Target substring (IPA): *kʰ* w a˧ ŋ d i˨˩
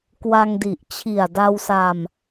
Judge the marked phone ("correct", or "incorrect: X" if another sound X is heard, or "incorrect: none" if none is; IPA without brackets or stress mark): incorrect: k